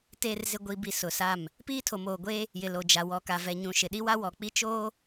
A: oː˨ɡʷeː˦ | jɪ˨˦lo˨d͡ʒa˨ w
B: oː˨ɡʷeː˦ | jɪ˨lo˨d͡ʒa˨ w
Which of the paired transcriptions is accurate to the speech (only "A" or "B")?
B